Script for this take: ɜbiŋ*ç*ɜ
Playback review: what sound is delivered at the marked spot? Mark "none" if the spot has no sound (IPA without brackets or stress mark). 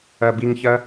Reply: ç